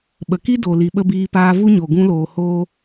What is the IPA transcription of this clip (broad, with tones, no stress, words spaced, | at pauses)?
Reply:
ɓə˨ki˦ do˨ li˨ɓə˧ biː˧paː˧vu˦ɲo˨ ɡũ˧loː˨hoː˧